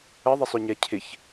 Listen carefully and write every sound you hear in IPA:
ə ðˤ ɛ sˤ ʏ ɲ ɛ cʰ ɪ ç

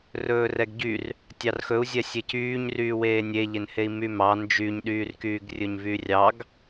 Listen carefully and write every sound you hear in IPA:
r ɵː r ɛ ɡ ɟ y r | tʲ ɑ r x ɵ u̯ zʲ ɛ sʲ e c yː ɲ r yː w eː nʲ e ʎ e n h e i̯ m y m ɑ n d͡ʒ y ɲ ɗ yː r k yː ɡ rʲ ɵ ɲ v y rʲ ɑ ɡ

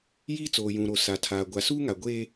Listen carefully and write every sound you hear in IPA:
j iː˦ t͡s oː˨ j ũ˨ ɾ o˨ s a˨ tʰ aː˨ ɡʷ a˨ s uː˦ ŋ a˨ ɡʷ e˦

